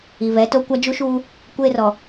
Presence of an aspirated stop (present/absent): absent